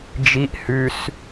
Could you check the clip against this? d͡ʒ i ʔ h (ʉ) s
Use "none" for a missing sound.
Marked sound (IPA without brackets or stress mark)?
ʉ